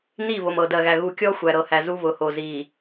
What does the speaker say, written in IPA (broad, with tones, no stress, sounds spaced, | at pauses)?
n i˦˨ β o˨ m ɤ˨ d ɜ˨ ɣ æ˨ ɣ u˨ kʲ ɔ˦ xʷ æ˨ ɾ ɤ˨ h æ˨ z u˦ β ʊ˨ h o˨ z i˨